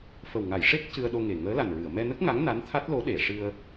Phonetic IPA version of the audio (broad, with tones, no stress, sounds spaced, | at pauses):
f ə˨˩ w ŋ a˨˩˨ j ʂ e˦˥ k̚ c ɨ˧ ə̯ ɗ o˧ ŋ e˨˩ ŋ əː˧˥ l a˨˩ n ɹ ɨ˨˩˨ ə̯ m ɛ˧ n ə˦˥ k̚ ŋ a˧˥ ŋ n a˧˥ n t̪ʰ a˦˥ t̚ l o˧˥ ɗ e˨˩˨ ʂ ɨ˧ ə̯